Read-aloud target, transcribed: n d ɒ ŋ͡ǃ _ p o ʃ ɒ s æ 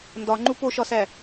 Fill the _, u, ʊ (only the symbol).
u